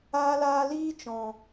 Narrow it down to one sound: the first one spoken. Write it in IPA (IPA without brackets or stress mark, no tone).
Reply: aː